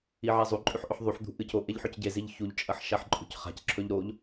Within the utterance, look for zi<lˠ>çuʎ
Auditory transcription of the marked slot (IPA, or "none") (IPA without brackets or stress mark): ʎ